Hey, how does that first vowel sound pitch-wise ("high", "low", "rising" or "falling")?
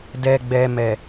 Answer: low